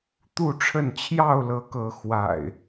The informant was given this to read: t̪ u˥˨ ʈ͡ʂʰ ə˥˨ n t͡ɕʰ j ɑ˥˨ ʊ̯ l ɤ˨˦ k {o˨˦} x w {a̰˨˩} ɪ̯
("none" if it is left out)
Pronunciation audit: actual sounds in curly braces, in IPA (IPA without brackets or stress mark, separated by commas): ɤ˨˦, a̰˨˩